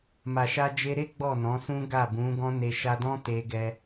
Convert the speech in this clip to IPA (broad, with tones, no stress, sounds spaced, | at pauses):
m a˨ ʃ a˧ d͡ʒ e˧ ɾ e˦ ɡ͡b ɔ˦˨ n ɔ̃˨˦ s ũ˦ ɡ a˦˨ b ũ˨˦ ɡ ɔ̃˦ n e˧ ʃ a˧ d ɔ̃˦ t e˧ ɡ ɛ˧